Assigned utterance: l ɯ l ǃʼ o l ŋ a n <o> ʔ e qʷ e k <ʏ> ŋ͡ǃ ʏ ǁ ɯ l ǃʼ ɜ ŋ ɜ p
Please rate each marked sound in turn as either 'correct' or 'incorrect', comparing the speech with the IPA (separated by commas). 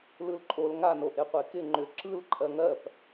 correct, incorrect